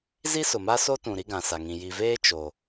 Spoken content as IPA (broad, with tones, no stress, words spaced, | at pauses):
zi˦sʊ˨ma˦ so˦tũ˨ ɾi˦ɡã˨sa˨ŋĩ˨ ji˨veː˦ t͡ʃo˨